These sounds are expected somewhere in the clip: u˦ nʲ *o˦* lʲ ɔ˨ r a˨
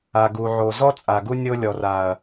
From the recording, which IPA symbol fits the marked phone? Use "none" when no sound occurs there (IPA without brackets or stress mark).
o˦